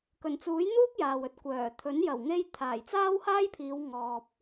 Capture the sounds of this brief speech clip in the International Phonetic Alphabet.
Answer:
k ɵ˨˩ n t͡s uː˨˥ j n̪ uː˥ k̚ j aː˨ w ɵ˨ t̚ kʷ œː˨˩ t̪ʰ ɵ˨˥ n j ɐ˨˩ w ŋ e˧ j t̪ʰ aː˨˩ j t͡s aː˥ w h aː˥ j pʰ iː˨˧ w ŋ ɔː˨ p̚

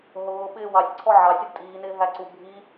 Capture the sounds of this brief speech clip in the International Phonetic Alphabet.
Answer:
ɦ ʊː ɓ ɪː w ɑ sʲ ǀʰ ɔ ʕ ɑ sʲ u d tʼ iː n ɪː ɦ æ ǀ u bʱ i

